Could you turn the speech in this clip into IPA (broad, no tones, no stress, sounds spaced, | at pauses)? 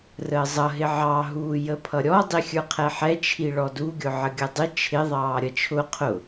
r əː zˤ ʌ ɦ ɪ ʕ ɑ ɦ uː j ə pʰ ʌ ɾʲ ɔ dˤ i xʲ ə˞ qʰ ɛ ħ ɛ t͡ʃʰ i ɭ ɔ d u ɡʲ ʊ ʕ ə ɡʲ ʌ dˤ ɪ t͡ʃʰ ɪ ðˤ ɑː ɾʲ ʌ t͡ʃʰ ʊ qʰ ʊ